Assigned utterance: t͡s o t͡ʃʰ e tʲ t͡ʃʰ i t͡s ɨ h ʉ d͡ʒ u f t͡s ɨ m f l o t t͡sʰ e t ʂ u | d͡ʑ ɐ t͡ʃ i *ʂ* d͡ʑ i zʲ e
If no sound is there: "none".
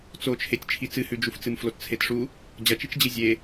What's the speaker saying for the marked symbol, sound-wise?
t͡ʃ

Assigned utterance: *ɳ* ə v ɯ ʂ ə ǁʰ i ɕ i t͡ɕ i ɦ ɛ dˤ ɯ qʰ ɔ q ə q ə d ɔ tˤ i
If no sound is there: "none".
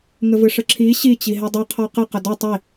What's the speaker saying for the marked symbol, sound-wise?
ŋ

